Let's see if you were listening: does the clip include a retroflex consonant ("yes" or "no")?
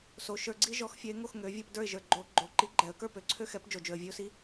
no